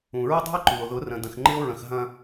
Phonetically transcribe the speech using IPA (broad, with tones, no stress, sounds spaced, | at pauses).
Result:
ũ˨ ɹ ə˦ dˤ ṳ˦ e̯ ǃ u˨ o̯ ð ʊ˨˦ r ə̃˨ d ə̃˨ x ŋ͡ǃ ɪ˦ o̯ ɹ ə̃˨ x ɦ ɐ̃˦